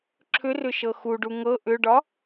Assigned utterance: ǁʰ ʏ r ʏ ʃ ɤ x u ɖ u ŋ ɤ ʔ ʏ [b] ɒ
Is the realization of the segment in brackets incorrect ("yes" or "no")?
yes